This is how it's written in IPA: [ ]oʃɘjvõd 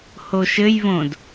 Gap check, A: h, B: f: A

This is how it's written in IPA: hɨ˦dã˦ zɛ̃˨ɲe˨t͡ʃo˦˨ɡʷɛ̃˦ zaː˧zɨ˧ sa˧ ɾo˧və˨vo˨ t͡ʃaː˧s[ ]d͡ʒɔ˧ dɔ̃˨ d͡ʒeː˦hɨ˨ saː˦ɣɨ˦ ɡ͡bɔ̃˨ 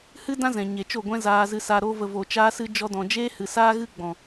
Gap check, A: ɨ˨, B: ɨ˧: B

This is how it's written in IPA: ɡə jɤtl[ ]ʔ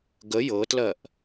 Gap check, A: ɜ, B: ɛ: A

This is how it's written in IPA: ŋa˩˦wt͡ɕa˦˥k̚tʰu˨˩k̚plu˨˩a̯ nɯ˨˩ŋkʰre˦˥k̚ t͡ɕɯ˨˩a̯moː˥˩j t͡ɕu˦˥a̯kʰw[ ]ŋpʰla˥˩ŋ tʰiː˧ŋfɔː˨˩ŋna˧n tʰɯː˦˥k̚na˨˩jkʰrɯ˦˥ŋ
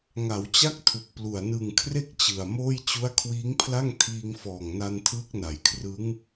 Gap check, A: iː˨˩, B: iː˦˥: B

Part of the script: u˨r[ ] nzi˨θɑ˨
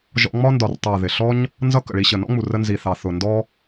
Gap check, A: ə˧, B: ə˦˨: A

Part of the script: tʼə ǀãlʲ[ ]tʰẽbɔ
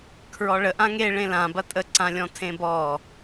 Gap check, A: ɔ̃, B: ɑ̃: A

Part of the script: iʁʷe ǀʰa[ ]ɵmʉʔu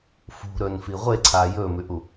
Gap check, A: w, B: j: B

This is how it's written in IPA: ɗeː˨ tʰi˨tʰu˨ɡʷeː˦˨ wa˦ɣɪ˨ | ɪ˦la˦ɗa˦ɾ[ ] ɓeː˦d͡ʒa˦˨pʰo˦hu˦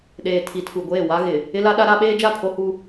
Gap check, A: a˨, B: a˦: B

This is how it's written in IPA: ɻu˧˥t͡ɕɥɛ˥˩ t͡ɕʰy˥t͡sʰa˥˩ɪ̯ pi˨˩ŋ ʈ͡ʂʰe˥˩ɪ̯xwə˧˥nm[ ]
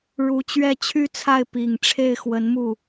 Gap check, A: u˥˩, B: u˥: A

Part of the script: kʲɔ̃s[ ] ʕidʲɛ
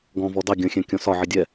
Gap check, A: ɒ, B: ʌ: A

